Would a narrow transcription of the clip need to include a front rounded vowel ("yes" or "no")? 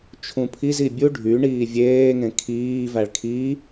yes